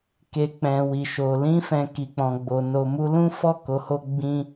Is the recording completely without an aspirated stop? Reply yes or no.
yes